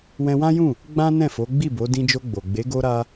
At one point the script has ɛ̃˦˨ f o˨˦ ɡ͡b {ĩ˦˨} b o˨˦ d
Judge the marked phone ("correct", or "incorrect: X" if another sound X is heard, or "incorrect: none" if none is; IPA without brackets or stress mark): incorrect: i˦˨